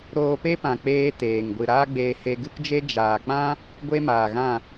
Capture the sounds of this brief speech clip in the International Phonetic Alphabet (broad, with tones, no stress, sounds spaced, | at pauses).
ɾ oː˧ p e˦ p ã˨ k͡p eː˦ t eː˨ ŋ ɡʷ ɨ˨ ɾ aː˦ ɡ͡b eː˧ h e˧ ɡ ɨ˦ k d͡ʒ e˦ d͡ʒ aː˨ k͡p ã˦ | ɡʷ e˦ m aː˨ ɣ ã˦˨